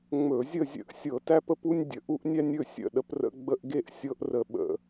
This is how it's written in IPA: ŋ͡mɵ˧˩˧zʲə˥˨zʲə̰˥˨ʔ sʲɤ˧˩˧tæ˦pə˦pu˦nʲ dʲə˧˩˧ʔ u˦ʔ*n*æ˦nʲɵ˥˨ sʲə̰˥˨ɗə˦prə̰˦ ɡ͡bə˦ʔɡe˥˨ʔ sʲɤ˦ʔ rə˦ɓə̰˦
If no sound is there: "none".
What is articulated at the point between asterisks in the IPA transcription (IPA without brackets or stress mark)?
nʲ